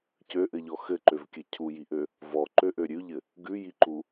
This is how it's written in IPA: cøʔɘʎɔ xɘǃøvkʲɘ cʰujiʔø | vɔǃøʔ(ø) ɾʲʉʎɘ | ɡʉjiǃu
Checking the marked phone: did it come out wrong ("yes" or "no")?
no